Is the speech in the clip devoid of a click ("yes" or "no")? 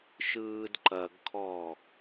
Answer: no